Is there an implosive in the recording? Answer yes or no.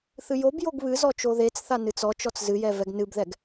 no